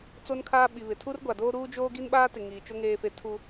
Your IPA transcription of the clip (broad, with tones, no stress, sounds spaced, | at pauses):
t͡s o˦ n kʰ aː˦ ɓ i˨ β ɪ˨ tʰ u˦ r ɡʷ a˨ d oː˦ ɾ uː˦ d͡ʒ oː˦ ɡ i˦ n ɓ aː˦ t ɪ˨ ŋ iː˨ t͡ʃ o˦ ŋ eː˦ f e˦ tʰ u˦